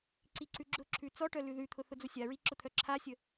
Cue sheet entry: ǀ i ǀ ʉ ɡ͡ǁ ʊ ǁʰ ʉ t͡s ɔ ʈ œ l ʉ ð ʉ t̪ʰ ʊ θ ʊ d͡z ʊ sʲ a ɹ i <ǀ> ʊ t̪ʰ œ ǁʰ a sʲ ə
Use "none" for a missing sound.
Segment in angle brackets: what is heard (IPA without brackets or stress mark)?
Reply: ǁ